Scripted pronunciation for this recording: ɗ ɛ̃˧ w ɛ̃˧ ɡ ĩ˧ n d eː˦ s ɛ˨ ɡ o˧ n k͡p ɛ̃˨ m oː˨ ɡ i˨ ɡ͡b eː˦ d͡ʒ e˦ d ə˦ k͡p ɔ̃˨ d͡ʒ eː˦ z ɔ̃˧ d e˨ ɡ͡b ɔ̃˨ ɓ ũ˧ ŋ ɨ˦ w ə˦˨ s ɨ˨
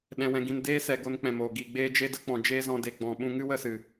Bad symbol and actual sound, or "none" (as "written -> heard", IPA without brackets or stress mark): none